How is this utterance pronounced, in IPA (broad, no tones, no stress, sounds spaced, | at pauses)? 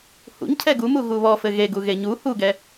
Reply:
h ṵ ɲ cʰ ɛ ɡ u m u ɣ u β ɔ f ɘ ɣ e ɡ u ɣ e ɲ u h u ɡ ɛ